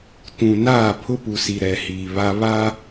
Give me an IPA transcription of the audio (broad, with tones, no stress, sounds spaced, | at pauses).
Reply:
t ũ˨ n aː˦˨ pʰ ʊ˦ p u˨ s i˨ ɾ ɛ˨ h iː˨ β a˦ β a˦